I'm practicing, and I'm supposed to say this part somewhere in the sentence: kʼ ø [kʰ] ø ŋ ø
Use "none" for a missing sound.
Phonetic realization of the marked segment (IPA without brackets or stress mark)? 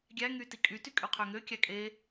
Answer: qʰ